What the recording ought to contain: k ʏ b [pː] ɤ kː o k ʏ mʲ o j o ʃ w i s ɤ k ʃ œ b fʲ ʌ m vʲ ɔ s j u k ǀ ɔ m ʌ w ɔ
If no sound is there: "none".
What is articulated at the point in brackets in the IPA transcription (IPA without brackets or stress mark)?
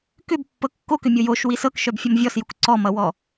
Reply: pː